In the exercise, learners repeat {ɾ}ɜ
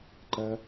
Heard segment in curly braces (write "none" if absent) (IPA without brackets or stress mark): ǃ